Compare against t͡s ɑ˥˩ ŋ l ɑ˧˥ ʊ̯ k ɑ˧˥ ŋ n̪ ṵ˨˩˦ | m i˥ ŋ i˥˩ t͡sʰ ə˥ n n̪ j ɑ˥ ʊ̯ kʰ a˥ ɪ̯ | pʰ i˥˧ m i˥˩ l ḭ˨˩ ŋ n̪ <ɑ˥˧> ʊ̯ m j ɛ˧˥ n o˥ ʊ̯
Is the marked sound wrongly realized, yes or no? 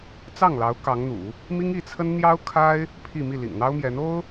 yes